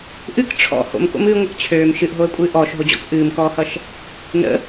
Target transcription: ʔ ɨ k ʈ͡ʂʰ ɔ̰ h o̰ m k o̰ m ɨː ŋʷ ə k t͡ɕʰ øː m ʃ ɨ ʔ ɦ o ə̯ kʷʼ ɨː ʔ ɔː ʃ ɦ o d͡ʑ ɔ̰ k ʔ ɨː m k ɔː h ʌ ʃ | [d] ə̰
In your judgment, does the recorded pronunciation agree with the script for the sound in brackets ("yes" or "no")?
no